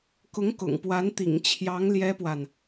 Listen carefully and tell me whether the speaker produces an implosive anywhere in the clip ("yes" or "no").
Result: no